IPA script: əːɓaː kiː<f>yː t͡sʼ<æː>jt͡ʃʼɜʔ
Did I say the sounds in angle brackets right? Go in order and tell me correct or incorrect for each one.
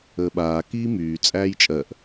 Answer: incorrect: m, correct

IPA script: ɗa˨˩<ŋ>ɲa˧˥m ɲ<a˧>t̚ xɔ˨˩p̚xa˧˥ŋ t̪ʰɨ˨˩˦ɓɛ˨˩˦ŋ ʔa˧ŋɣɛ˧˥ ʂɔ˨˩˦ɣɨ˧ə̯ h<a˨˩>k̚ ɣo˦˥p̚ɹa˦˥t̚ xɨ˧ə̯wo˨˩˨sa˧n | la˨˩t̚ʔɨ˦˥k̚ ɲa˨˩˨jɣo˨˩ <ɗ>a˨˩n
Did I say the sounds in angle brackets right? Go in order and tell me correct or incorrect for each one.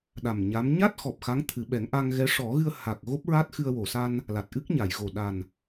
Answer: incorrect: m, incorrect: a˦˥, correct, correct

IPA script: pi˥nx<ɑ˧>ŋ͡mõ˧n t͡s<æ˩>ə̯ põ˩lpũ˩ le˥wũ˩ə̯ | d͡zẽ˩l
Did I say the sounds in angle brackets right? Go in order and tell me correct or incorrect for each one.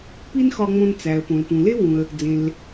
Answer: incorrect: ɒ˧, correct

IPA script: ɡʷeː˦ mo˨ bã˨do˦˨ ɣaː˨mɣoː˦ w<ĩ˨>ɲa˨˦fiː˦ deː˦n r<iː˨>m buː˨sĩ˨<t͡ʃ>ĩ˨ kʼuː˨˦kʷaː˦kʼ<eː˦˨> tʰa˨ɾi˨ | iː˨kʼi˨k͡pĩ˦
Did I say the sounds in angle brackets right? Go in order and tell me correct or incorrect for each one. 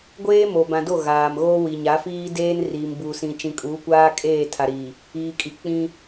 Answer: incorrect: i˨, correct, correct, correct

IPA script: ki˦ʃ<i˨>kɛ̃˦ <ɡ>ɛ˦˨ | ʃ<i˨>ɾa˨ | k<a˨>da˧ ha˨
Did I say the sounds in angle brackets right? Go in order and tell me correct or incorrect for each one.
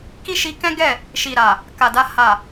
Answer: incorrect: i˧, correct, correct, correct

